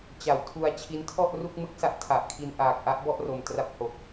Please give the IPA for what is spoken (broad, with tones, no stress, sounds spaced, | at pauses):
t͡ɕ a˩˦ w tʰ u˧ a̯ t͡ɕʰ i˦˥ n tʰ ɔ˥˩ ʔ r u˥˩ k̚ m ɯ˥˩ k̚ s a˦˥ ʔ tʰ a˨˩ ʔ kʰ i˧ n ʔ aː˨˩ k̚ ʔ a˥˩ ʔ b ɔ˥˩ ʔ r o˨˩ m t r a˦˥ p̚ h o˨˩ k̚